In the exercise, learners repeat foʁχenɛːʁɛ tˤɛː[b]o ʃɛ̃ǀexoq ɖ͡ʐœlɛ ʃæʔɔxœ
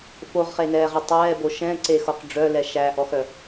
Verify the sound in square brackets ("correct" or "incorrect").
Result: correct